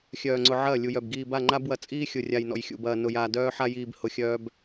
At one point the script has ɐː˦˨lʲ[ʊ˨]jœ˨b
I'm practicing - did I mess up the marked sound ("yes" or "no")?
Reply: yes